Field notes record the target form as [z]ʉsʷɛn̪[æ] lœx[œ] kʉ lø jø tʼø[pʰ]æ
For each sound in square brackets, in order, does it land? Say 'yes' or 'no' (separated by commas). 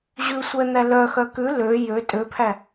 no, yes, yes, yes